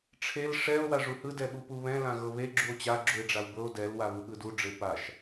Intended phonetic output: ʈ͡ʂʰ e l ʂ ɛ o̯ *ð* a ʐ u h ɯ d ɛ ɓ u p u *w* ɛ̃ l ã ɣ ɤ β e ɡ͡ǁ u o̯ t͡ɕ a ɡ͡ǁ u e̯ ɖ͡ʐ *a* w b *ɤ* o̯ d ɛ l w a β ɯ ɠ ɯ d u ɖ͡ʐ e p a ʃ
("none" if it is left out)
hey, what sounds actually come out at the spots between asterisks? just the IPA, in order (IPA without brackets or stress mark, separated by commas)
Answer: w, β, a, ɤ